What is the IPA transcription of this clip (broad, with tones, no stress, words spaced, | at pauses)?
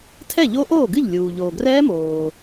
tʰɛ˥˩ʎo˦˥ʔoː˥˩ɡɨ˥˩ʎ lʲuː˩ ʎoː˩ɡrɛː˦˥moː˩